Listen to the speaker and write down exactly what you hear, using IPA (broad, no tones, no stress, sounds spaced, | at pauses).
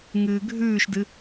ŋ ɨː ɡʱ ʉː ʃ d ɨ